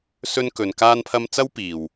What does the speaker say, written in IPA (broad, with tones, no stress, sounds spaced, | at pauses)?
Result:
s ɵ˥ n k ɵ˧ n k aː˥ n pʰ ɐ˥ m t͡s ɐ˥ w p iː˨ w